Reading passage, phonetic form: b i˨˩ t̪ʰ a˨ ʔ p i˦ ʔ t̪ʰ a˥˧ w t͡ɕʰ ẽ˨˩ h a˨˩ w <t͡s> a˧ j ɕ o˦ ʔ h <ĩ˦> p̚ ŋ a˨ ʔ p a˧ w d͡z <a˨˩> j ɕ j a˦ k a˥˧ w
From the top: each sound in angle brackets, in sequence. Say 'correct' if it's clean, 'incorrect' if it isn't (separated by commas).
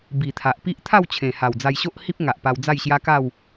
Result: incorrect, incorrect, incorrect